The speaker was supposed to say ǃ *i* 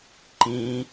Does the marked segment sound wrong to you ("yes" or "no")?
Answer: yes